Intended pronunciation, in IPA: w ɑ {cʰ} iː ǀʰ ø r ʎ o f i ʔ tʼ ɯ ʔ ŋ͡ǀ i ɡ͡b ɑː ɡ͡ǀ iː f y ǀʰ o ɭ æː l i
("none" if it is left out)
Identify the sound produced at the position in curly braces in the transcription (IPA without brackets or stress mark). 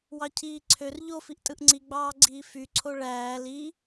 cʰ